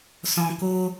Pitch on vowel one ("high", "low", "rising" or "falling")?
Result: low